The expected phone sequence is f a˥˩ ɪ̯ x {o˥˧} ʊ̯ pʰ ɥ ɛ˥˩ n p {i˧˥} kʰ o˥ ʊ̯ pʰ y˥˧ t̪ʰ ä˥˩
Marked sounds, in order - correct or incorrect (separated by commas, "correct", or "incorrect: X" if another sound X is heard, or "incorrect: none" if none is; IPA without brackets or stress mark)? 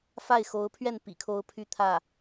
incorrect: o˧˥, incorrect: ḭ˨˩